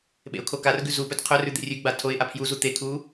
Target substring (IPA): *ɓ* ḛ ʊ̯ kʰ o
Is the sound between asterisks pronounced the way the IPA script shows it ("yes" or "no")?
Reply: yes